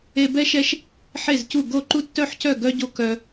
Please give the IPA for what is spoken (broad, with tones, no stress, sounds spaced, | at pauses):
e˥ b ɛ˥ ʃ ɛ˥ ʃ | ħ e˥˧ z c u˥˧ ɡ o˥˧ ǃ u˥ tː œ˥˧ ħ c œ˥˧ ɡ œ˥ ɟ o˥ k œ˥